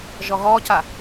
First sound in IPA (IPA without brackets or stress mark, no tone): ʒ